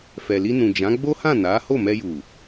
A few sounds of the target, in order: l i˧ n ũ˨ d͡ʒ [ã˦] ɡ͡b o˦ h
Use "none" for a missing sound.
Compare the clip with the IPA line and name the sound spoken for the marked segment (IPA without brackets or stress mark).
ã˨˦